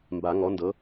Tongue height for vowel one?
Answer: low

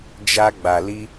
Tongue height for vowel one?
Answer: low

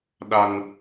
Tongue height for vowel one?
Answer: low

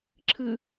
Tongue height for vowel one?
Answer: high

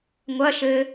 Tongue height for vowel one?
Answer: low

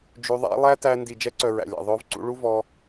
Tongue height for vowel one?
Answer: high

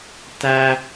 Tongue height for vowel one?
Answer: low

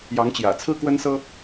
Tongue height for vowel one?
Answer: low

